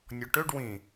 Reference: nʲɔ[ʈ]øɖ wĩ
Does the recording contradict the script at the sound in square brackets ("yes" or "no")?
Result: no